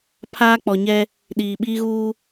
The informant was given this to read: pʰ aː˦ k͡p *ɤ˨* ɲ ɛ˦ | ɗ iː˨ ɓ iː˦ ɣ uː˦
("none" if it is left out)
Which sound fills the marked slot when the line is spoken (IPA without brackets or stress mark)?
ɔ˨